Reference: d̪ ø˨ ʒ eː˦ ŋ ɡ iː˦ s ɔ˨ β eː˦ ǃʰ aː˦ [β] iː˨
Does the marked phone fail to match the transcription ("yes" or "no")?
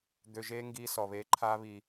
no